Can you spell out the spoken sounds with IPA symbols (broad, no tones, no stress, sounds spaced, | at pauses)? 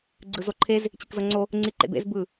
ɡ͡ǀ ɯ z o ǃʰ e z | t͡ɕ i k z ɤ ŋ͡ǀ o | ŋ͡ǀ i ǃ ḛ b ḛ z b ɯ